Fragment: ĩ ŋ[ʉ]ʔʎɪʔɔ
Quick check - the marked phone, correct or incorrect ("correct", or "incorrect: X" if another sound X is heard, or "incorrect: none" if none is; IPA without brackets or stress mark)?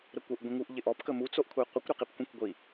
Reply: incorrect: u